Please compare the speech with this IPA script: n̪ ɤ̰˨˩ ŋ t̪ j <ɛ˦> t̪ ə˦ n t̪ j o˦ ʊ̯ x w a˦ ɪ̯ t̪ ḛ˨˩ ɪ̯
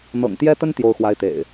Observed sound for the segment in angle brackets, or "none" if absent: ɛ˦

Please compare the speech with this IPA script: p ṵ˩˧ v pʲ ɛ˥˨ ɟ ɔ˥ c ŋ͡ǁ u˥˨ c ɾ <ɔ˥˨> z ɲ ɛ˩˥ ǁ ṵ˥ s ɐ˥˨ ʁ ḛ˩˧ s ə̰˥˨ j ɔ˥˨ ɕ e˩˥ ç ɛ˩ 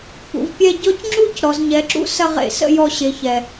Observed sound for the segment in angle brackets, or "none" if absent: ɔ˩˧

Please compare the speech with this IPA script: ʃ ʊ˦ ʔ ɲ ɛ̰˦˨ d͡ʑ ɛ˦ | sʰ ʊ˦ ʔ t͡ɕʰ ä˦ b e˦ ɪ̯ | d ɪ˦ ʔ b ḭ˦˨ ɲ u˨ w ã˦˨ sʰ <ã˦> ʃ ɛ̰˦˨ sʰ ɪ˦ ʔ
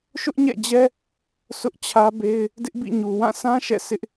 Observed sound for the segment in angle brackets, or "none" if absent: ã˦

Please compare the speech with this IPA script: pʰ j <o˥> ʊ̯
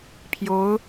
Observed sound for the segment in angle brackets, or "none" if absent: o˧˥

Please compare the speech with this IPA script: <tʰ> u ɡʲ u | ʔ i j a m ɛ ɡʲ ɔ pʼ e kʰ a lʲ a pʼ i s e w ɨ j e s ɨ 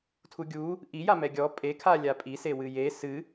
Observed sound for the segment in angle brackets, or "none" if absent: tʰ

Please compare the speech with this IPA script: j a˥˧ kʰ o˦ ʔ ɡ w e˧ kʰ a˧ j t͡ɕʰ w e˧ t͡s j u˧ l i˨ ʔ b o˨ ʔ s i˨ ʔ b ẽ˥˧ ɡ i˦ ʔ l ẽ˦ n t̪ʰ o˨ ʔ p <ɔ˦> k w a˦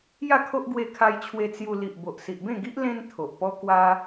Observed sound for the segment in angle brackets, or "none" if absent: ɔ˦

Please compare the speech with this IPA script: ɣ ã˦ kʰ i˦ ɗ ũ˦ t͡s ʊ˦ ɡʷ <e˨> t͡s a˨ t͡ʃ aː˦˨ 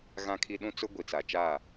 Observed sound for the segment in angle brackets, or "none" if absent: i˨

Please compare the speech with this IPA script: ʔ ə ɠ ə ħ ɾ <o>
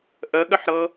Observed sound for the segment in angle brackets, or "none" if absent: ɤ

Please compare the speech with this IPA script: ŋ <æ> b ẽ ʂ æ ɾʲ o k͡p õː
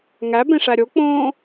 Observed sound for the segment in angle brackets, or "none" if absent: æ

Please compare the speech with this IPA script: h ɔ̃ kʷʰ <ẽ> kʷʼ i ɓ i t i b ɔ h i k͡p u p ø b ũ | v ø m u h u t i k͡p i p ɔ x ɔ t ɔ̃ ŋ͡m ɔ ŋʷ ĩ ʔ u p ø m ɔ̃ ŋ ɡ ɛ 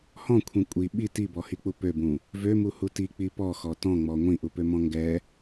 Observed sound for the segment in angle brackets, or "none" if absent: ĩ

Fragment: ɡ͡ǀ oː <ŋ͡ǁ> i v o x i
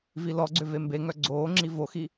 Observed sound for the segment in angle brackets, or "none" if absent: ŋ͡ǁ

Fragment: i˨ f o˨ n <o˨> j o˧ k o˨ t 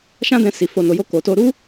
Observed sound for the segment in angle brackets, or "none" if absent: o˨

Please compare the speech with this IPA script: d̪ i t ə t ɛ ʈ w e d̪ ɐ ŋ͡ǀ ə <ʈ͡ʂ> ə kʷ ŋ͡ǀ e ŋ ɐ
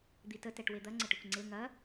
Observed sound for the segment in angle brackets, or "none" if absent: ʈ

